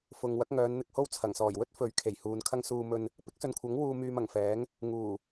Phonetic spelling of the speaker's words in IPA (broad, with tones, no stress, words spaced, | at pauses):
fʊ˨ŋ wɐ˨˥k̚ŋœː˨˧nn̪ɪ˧k̚ho˥w t͡sʰɐ˨˩ŋsɔː˨˩j wɵ˥t̚fɵ˨˥ɥkʰe˨˩j huː˨˧nkʰɐ˥ŋ suː˧mɵ˧n | pɪ˥k̚sɵ˨nkʷʰɐ˨˥ŋ wuː˧ myː˧mɐ˨˩ŋfɛː˨˥ŋ | ŋuː˨˩